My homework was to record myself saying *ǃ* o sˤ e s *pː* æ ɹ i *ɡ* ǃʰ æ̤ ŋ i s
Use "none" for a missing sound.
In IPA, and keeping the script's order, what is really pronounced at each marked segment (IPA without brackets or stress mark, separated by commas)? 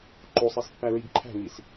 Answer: ǃ, pː, ɡ